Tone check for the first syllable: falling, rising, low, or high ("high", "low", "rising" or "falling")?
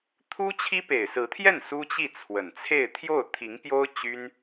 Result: high